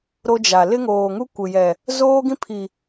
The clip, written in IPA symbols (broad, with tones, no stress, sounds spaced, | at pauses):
ɾ o˦ d͡ʒ a˨ l ɪ˦ ŋ oː˨ ŋ u˦ kʷ ɪ˨ j ɛ˨ | z oː˦ ɡ ĩ˦ pʰ i˨